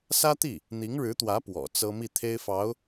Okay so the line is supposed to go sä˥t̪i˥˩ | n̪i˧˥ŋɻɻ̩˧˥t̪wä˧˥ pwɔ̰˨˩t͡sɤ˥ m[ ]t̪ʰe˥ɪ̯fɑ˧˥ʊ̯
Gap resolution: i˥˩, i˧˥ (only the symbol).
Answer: i˥˩